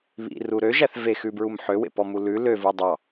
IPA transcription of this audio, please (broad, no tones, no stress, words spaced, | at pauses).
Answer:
βḭru ɾøʒæθ vexʉbɹum ħøwḛpɔmu lʉ løvu dˤɑ